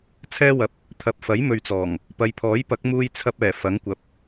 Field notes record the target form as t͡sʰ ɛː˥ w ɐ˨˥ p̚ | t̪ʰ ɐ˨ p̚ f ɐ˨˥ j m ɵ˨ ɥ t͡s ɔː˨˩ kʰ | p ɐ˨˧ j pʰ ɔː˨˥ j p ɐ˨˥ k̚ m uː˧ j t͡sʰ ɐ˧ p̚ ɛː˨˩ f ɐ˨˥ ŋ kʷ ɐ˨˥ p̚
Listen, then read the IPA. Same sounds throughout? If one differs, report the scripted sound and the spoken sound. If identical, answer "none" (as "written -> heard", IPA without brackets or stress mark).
kʰ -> ŋ